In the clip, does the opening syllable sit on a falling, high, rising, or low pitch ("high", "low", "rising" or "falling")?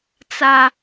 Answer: high